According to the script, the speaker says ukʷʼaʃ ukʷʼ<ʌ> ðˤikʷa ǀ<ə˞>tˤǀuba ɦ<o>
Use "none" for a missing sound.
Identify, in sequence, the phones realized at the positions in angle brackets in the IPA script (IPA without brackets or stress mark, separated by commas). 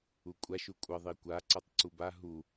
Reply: ʌ, ʌ, u